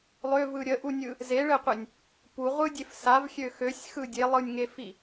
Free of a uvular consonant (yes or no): no